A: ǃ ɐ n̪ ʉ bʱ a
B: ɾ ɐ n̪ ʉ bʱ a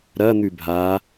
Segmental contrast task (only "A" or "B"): B